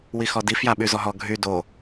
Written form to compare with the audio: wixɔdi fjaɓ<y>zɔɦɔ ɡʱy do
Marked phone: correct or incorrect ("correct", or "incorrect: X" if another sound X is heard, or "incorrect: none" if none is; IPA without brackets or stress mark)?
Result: correct